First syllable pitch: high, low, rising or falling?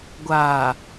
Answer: low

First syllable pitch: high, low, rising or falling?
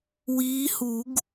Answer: rising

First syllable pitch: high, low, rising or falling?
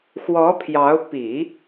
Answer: rising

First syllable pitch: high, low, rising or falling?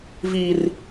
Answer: high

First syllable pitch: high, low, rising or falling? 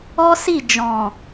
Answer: high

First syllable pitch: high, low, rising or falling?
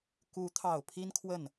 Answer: rising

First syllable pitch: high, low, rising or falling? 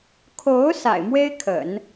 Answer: rising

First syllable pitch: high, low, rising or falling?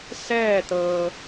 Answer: falling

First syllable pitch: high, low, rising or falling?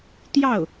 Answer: falling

